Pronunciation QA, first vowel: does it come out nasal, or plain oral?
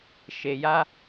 oral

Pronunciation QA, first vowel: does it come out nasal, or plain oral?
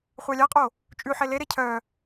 oral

